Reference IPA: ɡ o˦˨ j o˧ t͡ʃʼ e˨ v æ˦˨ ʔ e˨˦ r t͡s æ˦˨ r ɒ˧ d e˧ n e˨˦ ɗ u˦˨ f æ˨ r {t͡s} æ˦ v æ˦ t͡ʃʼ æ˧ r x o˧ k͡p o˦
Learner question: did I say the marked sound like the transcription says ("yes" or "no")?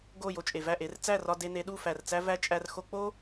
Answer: yes